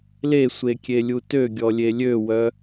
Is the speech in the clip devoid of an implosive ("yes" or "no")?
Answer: yes